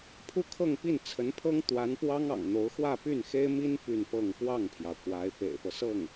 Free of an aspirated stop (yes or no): no